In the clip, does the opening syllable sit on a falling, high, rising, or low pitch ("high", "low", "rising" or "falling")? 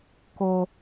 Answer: high